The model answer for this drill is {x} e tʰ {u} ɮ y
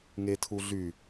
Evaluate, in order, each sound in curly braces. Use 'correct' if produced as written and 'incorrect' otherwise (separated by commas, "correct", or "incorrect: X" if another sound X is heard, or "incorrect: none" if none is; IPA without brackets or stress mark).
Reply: incorrect: ŋ, correct